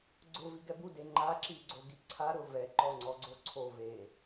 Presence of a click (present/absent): present